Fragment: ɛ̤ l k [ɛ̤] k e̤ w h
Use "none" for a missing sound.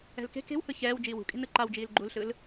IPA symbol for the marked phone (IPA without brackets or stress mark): e̤